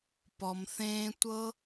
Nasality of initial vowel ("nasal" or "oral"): oral